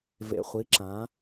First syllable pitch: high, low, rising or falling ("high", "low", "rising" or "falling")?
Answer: low